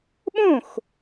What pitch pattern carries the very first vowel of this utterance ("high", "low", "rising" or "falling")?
falling